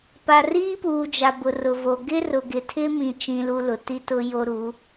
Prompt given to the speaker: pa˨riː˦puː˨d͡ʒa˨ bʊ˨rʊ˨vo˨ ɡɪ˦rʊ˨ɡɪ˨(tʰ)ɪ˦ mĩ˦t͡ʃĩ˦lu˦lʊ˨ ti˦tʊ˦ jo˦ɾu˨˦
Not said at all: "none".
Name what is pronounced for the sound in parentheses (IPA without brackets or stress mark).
tʰ